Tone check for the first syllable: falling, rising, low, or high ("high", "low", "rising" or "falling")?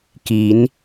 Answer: rising